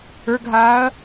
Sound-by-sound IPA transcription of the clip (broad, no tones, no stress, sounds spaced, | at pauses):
ə˞ ɡ ɦ aː ɐ̯